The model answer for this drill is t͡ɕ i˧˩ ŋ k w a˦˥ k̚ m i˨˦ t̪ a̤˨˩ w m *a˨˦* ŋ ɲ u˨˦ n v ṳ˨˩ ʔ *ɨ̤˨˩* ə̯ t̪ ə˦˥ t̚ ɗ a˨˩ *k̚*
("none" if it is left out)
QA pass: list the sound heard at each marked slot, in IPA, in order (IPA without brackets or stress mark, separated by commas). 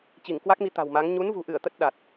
a˨˦, ɨ˧˩, t̚